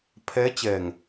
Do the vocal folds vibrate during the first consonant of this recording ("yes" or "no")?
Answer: no